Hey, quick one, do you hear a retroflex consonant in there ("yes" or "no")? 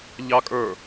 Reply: no